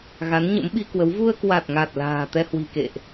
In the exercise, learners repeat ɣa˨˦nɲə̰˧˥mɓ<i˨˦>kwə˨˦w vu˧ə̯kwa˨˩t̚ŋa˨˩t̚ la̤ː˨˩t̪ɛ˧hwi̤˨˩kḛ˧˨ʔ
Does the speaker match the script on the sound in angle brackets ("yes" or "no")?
no